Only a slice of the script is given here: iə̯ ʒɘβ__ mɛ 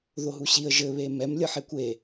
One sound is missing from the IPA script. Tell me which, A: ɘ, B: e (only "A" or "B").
B